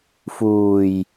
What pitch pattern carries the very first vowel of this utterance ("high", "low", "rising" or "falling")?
low